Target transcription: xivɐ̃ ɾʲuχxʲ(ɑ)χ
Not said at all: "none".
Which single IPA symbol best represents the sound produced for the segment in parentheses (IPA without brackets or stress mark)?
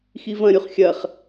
ɐ